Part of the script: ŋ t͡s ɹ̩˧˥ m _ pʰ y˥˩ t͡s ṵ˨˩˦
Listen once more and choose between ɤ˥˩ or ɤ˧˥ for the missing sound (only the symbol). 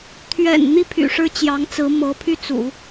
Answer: ɤ˧˥